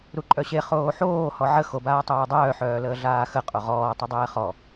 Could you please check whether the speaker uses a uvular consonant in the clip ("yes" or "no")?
yes